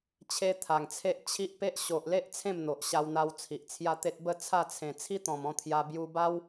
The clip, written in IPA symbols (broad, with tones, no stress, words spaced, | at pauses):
t͡ɕʰe˦t̪ʰa˨˩ŋt͡sʰe˦ʔ t͡ɕʰi˦ʔpe˦ʔ ɕo˨ʔle˦ʔ t͡sʰẽ˥˧mn̪o˨ʔɕa˧wn̪a˧w t͡sʰi˨ʔt͡sʰja˦t̪e˦t̚ bə˥˧ t͡sʰa˥˧t͡sʰẽ˨˩ t͡sʰi˦t̪ɔ̃˨˩m ɔ̃˥˧t̪ʰja˧ bju˧ba˦w